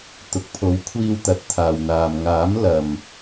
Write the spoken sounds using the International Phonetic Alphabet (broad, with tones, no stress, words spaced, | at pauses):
t̪ʊ˨k̚pʰo˨˥wkʷʰiː˧wt̪ɐ˨˥t̚ t̪ʰaː˨wn̪aː˨m ŋaː˨˥mlɐ˨m